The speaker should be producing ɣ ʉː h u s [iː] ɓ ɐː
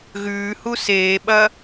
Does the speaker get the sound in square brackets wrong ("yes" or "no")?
yes